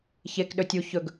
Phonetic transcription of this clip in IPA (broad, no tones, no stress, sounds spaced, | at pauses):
ç e k ɗ ɵ tʲ u ç ɵ ɡ